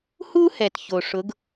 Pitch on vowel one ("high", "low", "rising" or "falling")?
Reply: high